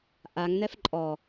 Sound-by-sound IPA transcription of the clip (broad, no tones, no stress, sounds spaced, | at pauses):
ʔ a ŋ n ɛ f ǃʼ ɔ